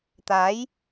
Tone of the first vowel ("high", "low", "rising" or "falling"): rising